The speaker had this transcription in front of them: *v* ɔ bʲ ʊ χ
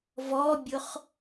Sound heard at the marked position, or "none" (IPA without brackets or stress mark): v